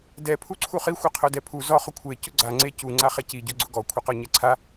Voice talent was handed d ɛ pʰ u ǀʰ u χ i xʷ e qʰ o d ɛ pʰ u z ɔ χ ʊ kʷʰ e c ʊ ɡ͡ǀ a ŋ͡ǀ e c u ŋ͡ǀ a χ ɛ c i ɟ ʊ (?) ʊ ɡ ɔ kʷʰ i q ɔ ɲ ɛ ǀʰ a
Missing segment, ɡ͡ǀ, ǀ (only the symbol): ɡ͡ǀ